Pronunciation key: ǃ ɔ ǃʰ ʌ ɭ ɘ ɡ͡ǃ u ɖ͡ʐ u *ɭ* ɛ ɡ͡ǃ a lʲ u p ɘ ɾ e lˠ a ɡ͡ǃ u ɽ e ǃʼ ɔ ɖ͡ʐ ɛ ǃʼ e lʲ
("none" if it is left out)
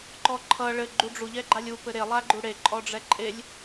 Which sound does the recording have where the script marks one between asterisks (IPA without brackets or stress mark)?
ʎ